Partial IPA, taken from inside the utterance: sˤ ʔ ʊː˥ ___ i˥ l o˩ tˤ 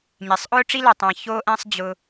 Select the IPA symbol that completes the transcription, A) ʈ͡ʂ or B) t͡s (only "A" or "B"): A